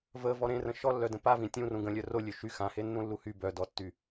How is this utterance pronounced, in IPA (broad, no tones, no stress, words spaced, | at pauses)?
və vɔɾẽrə̃ ʃɔlːœdə̃ pavĩ tʲũrũ ɡə̃lʲœ rolʲø ʃy xãhe nːũlːuhy bœdɔtːy